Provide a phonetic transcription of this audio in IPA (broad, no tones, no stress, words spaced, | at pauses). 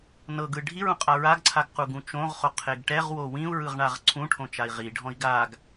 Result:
nɤ ɡɯɖʱiɹũ qʼaɹaɡǀʰaɡ quɡũt͡ʃõʁχo qʰeɡʈɛʁwo wĩu̯ɹɯʁ ɳaʁǀʰũʈʰõ t͡ʃai̯ʁiɖʱɔ̃i̯ ɡaɡ